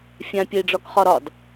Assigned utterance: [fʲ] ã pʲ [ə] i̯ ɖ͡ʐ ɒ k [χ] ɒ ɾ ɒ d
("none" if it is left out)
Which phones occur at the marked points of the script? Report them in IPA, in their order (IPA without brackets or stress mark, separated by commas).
fʲ, ə, χ